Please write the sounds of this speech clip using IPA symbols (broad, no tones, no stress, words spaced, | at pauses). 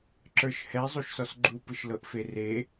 ǁə˞ʃhɛ zˤuʃsɔsɡ͡ǃu pɯʃlɤʔfere